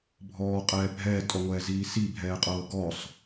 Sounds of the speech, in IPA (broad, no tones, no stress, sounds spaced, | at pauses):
bʱ ɔː qʼ ɛː bʱ ɛː tʼ ɔ ŋʷ ɛː z iː s i bʱ ɛː qʼ ɤː ɡ ɔ sˤ